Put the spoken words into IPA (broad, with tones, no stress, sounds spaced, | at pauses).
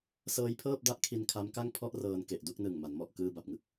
s ɤː˦˥ j pʰ ɤː˥˩ p̚ d a˥˩ ʔ kʰ i˧ n kʰ a˦˥ m k a˥˩ ŋ pʰ ɔ˥˩ ʔ r ɤː˧ n k e˨˩ ʔ d u˥˩ k̚ n ɯ˨˩ ŋ m a˩˦ n m ɔ˨˩ ʔ k ɯː˧ b a˨˩ p̚ ŋ ɯ˦˥ k̚